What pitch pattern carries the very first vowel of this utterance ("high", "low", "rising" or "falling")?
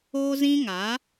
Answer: high